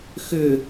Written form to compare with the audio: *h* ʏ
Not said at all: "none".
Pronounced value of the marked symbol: x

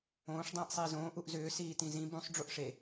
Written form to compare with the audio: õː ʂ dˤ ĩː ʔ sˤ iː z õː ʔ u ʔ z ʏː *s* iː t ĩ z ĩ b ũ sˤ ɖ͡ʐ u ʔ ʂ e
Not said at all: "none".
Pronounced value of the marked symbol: s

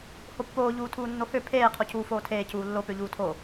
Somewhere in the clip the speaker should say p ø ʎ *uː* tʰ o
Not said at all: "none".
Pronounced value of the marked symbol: uː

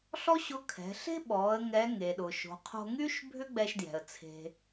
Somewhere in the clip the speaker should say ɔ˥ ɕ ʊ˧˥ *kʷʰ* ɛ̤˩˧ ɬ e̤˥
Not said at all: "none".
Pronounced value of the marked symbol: kʰ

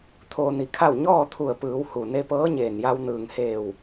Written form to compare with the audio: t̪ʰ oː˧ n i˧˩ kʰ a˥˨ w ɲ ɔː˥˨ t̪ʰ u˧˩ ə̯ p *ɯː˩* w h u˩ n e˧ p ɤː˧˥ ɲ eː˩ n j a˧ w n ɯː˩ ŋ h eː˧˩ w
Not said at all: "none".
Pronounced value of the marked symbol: ɯː˩˧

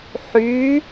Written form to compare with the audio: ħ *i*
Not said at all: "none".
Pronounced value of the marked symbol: y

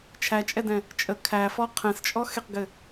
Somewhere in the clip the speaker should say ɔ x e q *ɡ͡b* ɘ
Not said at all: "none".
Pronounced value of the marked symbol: ɡ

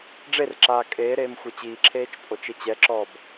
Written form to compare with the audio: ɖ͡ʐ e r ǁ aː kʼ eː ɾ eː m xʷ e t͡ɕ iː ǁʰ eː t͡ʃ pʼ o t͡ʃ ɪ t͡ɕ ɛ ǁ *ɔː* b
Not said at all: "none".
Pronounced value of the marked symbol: ɔː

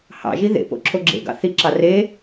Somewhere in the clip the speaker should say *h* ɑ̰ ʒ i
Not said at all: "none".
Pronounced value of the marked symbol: h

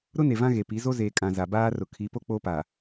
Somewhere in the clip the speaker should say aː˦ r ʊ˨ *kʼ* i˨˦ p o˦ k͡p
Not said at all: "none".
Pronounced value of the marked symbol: kʰ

